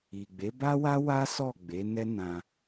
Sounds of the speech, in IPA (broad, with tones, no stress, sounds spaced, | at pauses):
i˨ ɡ͡b e˨˦ b a˦ w a˦ w a˦ s ɔ˦˨ ɡ͡b e˨˦ n ɛ˦ n ã˧